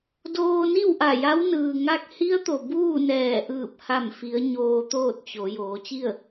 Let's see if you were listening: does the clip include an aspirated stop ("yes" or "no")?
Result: no